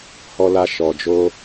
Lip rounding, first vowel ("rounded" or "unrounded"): rounded